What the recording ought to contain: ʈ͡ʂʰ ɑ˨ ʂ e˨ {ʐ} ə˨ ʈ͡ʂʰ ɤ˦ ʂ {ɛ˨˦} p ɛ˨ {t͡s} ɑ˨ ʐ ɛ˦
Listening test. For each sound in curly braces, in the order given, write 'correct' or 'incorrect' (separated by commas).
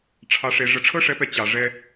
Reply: correct, correct, incorrect